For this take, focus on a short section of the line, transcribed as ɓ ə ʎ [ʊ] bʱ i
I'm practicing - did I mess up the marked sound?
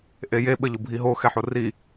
no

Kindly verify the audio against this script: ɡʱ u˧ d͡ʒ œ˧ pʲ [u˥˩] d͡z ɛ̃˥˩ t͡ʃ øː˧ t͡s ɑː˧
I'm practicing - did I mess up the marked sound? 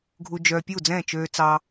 no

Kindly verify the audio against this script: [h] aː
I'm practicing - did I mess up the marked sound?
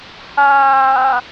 no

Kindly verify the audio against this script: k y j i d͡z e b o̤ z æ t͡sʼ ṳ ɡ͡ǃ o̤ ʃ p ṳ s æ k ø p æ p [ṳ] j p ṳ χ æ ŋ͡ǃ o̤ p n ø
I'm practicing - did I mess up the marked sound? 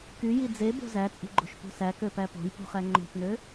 yes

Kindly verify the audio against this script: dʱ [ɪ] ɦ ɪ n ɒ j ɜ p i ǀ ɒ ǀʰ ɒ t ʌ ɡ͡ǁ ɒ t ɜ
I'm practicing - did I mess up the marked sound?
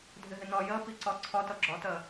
no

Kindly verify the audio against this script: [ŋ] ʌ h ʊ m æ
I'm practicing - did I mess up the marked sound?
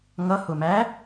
no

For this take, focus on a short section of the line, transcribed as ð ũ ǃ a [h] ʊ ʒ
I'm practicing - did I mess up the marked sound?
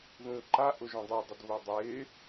yes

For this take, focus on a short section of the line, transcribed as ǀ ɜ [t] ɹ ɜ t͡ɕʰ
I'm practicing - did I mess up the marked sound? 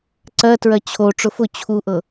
no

